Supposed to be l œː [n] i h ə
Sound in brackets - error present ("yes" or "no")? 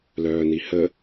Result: no